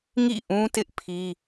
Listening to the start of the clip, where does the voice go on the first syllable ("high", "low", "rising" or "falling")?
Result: falling